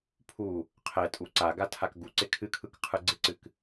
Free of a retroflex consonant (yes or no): yes